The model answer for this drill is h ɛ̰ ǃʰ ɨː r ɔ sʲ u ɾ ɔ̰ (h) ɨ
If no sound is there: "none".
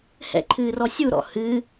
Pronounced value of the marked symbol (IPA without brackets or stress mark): h